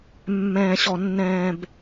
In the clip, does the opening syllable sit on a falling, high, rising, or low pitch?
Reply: low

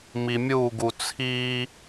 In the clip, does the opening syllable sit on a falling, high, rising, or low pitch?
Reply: low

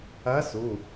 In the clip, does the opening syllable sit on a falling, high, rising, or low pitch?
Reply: rising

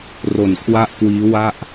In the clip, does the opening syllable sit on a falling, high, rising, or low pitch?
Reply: low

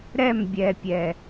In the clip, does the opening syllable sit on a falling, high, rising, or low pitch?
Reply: falling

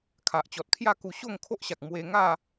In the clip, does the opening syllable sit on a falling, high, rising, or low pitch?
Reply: low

